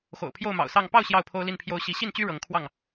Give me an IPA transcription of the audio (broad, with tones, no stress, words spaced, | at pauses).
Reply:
xo̰˨˩ʊ̯pʰjo˥˨ʊ̯mɑ̰˨˩ʊ̯sɑ˥˨ŋ pɑ˥˨ʊ̯ ɕjɑ˥˨ʊ̯pʰo˦ʊ̯li˥˨npʰjo˦ʊ̯ ɕi˨˦ɕi˥˨nt͡ɕy˦ ɻɤ˨˦ŋ kʰwɑ˥˨ŋ